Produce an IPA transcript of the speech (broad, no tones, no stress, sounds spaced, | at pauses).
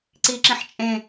ǀ i ǁ ĩ ħ t͡ʃʼ ẽ